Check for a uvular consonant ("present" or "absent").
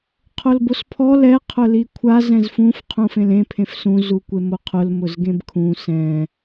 present